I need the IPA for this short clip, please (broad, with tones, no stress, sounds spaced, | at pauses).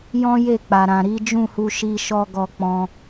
j ɔ̃˦ j e˦˨ k͡p a˨ ɾ ã˨ ɾ i˨˦ d͡ʒ ũ˦˨ h u˧ ʃ i˦ ʃ ɔ˦ ɡ ɔ˧ k͡p ɔ̃˧